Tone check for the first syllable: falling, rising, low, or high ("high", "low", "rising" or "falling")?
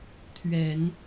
low